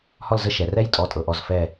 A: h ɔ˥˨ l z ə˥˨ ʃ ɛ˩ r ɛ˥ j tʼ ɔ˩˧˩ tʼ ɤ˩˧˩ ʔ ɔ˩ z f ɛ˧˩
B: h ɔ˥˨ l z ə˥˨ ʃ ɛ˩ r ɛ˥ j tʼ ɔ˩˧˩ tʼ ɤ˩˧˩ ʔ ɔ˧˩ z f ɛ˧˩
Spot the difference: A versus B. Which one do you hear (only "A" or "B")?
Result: B